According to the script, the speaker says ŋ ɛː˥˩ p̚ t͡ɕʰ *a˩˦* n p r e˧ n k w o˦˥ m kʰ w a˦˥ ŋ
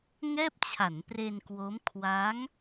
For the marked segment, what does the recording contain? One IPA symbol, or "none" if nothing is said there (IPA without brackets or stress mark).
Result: a˩˦